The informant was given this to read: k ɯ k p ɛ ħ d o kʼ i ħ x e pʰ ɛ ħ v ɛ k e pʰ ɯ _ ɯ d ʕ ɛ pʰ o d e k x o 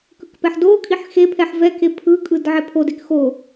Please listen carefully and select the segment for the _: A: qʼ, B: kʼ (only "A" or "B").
B